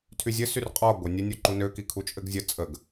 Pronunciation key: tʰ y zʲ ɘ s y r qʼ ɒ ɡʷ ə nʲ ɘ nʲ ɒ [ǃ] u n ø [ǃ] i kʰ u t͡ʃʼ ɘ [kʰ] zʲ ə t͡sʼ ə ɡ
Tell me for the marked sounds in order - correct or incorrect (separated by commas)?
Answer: correct, incorrect, incorrect